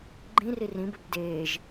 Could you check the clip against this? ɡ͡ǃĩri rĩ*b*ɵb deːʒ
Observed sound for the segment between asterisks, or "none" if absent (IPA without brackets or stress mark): b